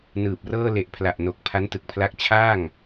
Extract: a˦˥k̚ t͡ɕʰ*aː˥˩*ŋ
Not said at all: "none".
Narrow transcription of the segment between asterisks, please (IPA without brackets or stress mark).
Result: aː˥˩